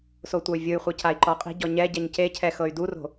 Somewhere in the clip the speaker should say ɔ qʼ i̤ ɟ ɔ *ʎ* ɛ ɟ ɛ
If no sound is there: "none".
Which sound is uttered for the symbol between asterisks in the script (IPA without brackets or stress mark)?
ɲ